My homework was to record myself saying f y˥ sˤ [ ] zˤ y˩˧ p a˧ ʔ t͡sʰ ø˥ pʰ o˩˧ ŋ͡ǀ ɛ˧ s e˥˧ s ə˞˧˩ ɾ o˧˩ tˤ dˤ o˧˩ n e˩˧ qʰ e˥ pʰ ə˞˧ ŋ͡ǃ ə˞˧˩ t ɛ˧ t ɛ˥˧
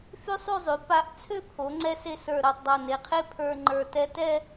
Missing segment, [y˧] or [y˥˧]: y˥˧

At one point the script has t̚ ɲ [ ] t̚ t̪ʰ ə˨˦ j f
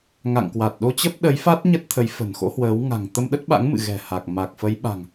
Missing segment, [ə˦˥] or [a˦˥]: ə˦˥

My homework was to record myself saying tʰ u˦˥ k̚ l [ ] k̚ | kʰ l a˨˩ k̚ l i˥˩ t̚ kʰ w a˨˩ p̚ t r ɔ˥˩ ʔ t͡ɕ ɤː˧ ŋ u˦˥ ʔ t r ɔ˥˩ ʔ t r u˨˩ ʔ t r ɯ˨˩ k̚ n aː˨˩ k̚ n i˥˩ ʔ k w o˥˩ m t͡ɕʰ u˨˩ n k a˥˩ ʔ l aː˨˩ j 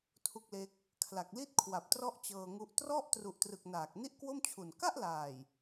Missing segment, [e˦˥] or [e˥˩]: e˦˥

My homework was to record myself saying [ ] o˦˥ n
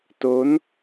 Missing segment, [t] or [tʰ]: t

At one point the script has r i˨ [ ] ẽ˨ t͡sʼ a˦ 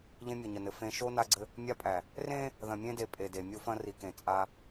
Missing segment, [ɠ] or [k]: k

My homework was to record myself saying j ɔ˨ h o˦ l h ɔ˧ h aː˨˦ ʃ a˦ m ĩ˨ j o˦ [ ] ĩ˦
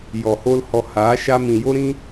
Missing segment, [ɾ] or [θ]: ɾ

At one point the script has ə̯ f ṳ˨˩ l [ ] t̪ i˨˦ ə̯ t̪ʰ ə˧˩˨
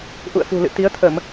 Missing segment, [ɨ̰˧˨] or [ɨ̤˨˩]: ɨ̰˧˨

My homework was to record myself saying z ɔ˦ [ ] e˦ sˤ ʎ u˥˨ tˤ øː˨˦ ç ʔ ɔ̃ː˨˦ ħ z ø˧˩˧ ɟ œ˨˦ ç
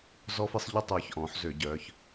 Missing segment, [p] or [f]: f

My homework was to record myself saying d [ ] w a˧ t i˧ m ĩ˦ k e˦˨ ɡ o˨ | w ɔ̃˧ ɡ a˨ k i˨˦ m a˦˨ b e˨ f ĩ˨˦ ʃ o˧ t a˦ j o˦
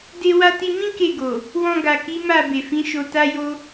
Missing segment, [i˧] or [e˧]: e˧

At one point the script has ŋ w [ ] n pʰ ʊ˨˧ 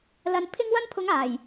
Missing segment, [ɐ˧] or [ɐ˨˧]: ɐ˧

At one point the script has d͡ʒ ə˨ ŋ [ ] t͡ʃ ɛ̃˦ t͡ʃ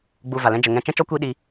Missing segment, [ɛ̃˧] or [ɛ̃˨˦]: ɛ̃˧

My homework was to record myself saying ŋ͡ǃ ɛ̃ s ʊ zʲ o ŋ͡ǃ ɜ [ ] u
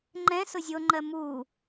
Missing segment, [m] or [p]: m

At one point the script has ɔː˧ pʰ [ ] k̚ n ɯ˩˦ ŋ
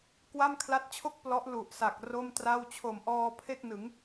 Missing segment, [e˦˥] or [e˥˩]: e˥˩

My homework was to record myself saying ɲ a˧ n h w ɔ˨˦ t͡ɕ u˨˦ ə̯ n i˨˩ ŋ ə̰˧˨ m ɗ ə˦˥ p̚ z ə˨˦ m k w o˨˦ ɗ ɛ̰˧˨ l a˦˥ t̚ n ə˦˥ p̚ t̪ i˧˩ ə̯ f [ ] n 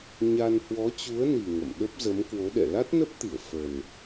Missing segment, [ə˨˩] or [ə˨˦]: ə˨˩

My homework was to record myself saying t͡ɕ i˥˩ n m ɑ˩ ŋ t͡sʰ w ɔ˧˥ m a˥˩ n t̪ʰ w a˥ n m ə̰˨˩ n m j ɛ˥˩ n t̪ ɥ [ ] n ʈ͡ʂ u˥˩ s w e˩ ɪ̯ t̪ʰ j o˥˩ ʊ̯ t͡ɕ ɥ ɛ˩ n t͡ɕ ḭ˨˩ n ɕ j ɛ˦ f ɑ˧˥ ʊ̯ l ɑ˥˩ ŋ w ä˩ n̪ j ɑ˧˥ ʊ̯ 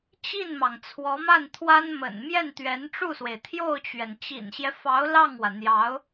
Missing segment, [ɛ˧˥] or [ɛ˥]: ɛ˧˥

